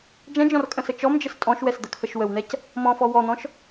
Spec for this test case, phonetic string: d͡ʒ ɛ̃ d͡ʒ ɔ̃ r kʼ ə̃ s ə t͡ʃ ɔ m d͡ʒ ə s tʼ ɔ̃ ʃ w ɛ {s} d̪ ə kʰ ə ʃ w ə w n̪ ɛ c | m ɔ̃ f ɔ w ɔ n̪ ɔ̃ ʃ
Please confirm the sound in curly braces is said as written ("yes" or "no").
yes